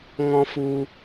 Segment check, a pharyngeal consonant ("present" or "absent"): absent